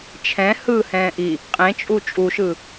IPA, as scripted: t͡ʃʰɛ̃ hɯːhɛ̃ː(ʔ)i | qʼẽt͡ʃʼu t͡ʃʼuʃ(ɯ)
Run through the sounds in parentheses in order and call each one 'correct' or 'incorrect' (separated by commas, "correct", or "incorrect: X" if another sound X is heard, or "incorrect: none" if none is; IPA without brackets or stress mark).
correct, correct